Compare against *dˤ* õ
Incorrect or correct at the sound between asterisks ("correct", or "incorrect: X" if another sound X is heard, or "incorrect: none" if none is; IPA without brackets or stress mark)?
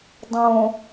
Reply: correct